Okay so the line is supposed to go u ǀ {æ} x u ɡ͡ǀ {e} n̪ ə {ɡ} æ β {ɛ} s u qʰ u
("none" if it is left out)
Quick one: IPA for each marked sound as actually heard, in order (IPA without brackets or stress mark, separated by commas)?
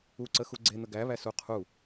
ə, e, ɡ, æ